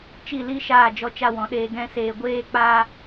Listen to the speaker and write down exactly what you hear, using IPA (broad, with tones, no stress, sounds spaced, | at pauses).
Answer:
t͡ʃ i˦˨ l i˦ ʃ aː˦˨ d͡ʒ ɔ˦ t͡ʃ a˦ w ɔ̃˨˦ ɗ eː˦ ɡ ɛ̃˦ s eː˧ ɡʷ eː˦ k͡p a˦